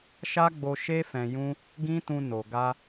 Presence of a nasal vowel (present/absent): present